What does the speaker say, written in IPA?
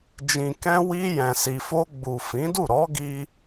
d͡ʒĩ˨kɛ̃˧ wi˧ jɛ̃˨si˨fo˧ ɡ͡bu˨fĩ˨˦du˦˨ ɾɔ˨˦ɡi˧

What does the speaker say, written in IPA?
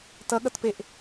tʌɠʌtpeʔ

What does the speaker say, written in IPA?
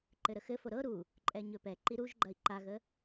ǃɘɾəxɘfo ɾɤ ɾu | ǃʼɛɲɵpɛ ǃiɾuʒɡ͡ǃɐi̯ ǃaɣə

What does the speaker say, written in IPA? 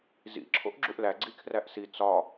zḭ ǁʰo̰ʔɡ͡ǁuʔlæ ɡ͡ǀikʰræʔsi t͡sɒ

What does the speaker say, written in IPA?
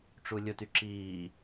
ʈ͡ʂulʲʊty ǁiː

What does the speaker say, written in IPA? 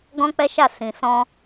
ɡɔ̃˦k͡pɛ˦ʃa˦˨ sĩ˨sɔ̃˧

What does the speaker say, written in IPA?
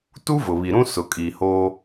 tu˦vʊ˨βi˨ɾũ˦ sʊ˨kʼi˨hoː˦

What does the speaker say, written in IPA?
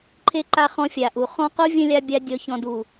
ǃʰe˦ǃa˧χɔ̃˧ fʲa˨ʔu˨ χɔ̃˧qo˦vʲə̃˧lʲa˧ bʲa˧ dʲɔ˨çɔ̃˨du˨

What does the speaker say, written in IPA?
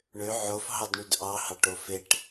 ɳø ʕofɦɑdɳyd ʔɑhɑʈo feʈ

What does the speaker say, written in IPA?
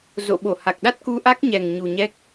zo̰˧˨ɓo˧˩ha˨˩k̚ɗa˦˥t̚ ku˧ʔa˦˥k̚ɲɛ˨˩ŋ ɲu˨˩ɲɛ˦˥k̚

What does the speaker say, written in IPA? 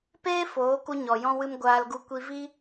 peː˦ foː˨˦ku˧ ɲɔ˨ jɔ̃˧wɨ˧m ɡʷaː˧lɡu˧ kʷi˧vi˦

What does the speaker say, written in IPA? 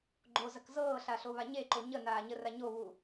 ɡ͡ǃozɐk zɤːɬaɬoβa ɲeǃo ɲənaːɲəra ɲoβu

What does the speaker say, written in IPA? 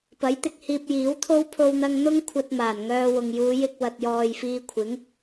pɐ˨˥j t̪ɪ˧k̚hiː˧p̚jiː˨˥wt̪ʰo˥w pʰo˧wn̪ɐ˧ŋ n̪ʊ˥ŋ kʷʰɐ˧t̚maː˨˩n ŋœː˧wʊ˨ŋ juː˨˧ jɪ˧k̚ wɐ˨t̚jɔː˨j fiː˧kʷʰɪ˨˥ŋ

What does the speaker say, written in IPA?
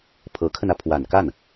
pʰɤ˧˥kʰə˧nä˩ pʰwa˨˩nka˥˩n

